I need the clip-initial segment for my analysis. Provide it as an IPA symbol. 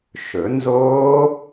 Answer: ʃ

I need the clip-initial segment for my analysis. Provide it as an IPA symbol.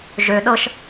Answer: ʒ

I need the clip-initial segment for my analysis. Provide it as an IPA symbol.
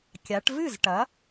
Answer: kʲ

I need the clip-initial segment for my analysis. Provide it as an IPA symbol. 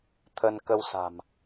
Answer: t̪ʰ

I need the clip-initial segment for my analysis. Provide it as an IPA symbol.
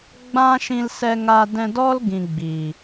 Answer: ɡ͡b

